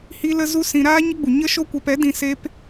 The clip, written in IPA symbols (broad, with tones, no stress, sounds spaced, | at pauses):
h i˦ l ə˦ z u˦ s ĩ˧ ɾ aː˦ ɲ ə˦ ɡ͡b u˨ ɲ ə˦ ʃ o˦ kʷ ɛ˧ p ɛ˨˦ d ĩ˧ s e˦ p